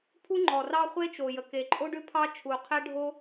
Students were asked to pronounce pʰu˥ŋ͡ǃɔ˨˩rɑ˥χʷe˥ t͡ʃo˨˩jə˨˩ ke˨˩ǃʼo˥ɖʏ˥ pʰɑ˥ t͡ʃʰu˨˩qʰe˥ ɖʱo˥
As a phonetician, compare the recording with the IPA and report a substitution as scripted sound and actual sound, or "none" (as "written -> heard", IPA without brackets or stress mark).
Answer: none